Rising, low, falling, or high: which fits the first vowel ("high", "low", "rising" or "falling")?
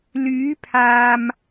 rising